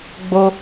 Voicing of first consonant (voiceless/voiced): voiced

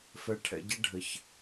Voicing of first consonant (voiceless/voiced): voiceless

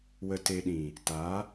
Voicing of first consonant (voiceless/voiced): voiced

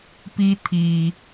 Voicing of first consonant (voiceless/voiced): voiceless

